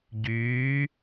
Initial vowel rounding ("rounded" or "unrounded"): rounded